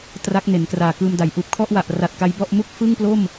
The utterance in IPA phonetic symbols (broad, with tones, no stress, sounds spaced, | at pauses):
t r a˦˥ k̚ n e˩˦ n k r aː˨˩ k ɯː˧ m d a˨˩ j ʔ uː˦˥ p̚ kʰ ɔ˥˩ ʔ w a˨˩ ʔ r a˨˩ t̚ k a˦˥ j b ɔ˥˩ ʔ m u˥˩ k̚ f ɯ˥˩ ŋ p l o˥˩ m